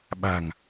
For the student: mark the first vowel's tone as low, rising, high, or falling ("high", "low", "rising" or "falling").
low